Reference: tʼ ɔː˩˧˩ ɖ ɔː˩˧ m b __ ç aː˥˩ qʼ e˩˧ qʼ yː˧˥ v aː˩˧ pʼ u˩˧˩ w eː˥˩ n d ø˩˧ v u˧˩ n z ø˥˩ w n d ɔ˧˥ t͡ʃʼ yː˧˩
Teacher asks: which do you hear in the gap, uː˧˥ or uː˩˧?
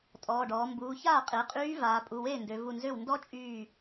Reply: uː˩˧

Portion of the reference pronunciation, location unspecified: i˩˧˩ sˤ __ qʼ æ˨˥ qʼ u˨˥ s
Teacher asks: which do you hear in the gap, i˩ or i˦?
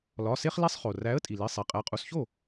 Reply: i˩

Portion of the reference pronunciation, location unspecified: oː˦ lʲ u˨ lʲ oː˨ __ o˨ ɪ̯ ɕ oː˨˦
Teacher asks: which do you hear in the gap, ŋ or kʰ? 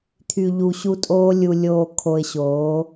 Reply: kʰ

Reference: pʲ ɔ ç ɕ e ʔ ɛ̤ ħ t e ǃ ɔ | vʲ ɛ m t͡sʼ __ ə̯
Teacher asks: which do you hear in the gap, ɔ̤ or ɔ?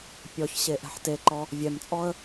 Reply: ɔ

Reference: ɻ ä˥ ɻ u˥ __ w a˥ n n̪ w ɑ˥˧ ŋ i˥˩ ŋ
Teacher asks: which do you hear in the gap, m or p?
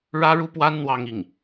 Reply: p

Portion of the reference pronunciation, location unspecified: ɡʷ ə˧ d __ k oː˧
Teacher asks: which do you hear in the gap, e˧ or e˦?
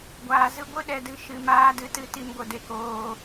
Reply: e˦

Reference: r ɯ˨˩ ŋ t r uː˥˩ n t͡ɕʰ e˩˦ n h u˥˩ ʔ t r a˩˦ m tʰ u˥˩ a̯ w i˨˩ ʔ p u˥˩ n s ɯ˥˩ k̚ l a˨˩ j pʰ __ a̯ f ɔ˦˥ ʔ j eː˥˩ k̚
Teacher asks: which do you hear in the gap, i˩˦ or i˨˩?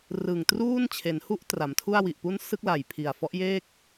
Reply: i˨˩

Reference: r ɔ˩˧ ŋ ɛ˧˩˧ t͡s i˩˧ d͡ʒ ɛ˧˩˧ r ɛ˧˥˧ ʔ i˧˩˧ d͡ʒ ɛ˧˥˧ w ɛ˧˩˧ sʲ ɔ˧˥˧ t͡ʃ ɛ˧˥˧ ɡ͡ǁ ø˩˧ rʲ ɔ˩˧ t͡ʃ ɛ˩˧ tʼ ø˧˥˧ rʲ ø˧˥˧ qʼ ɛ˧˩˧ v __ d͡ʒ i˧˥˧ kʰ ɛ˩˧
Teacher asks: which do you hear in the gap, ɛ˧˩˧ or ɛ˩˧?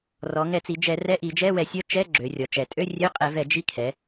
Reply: ɛ˧˩˧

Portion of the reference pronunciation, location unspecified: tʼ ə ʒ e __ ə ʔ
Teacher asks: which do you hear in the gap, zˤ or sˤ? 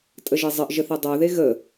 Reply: zˤ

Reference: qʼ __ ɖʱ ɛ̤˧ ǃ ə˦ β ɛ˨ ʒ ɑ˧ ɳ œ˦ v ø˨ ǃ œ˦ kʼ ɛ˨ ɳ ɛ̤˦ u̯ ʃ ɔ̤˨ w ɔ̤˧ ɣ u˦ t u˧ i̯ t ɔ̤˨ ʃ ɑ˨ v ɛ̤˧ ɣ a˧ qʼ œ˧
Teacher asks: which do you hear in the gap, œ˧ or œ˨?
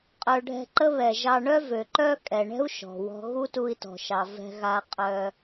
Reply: œ˨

